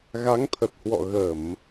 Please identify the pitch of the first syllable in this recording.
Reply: rising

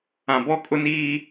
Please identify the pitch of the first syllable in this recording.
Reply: low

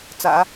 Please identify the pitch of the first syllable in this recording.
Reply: low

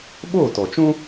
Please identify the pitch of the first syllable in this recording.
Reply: falling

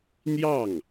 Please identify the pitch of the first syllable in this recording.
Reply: falling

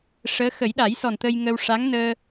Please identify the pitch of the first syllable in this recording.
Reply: rising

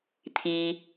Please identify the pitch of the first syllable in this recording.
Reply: low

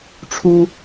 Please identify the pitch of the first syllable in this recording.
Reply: high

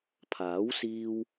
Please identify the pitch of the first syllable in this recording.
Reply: rising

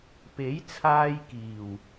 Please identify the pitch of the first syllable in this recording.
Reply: rising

